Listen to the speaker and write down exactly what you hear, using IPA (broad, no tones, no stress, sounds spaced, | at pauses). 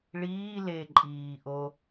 ɭ iː l e ǃʼ iː ʔ o